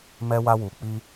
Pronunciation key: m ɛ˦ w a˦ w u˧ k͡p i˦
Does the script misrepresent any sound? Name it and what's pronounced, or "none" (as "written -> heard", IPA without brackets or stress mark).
none